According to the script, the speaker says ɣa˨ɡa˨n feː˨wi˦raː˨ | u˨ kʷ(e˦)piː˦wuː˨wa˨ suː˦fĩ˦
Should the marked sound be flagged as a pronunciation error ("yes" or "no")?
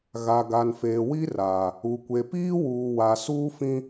yes